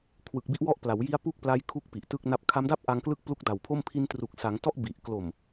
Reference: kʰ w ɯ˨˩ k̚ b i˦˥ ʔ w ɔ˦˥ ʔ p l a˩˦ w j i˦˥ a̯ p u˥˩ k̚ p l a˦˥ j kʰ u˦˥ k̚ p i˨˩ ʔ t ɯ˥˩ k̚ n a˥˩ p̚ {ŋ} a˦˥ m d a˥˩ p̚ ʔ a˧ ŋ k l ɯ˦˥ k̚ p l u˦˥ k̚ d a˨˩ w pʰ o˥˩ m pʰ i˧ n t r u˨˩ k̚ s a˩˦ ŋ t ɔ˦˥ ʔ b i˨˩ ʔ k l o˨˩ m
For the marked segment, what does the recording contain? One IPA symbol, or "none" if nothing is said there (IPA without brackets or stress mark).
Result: kʰ